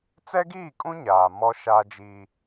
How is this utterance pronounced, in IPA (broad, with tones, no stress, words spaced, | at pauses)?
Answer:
t͡sɛ˦ɡiː˦˨kʼũ˦ ɲaː˨ mɔ˦ʃaː˦d͡ʒiː˦